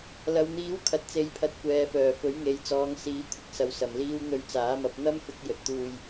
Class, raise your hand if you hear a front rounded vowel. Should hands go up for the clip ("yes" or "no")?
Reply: yes